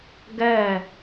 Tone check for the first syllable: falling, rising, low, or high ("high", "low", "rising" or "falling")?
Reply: falling